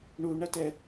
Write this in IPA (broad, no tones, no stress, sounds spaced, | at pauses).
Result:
ɳ u ɳ ɐ t ɛ